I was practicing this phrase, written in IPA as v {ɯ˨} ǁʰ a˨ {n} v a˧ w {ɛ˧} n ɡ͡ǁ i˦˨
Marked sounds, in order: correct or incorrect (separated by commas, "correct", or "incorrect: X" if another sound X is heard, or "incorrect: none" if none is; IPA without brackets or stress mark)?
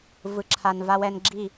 correct, correct, correct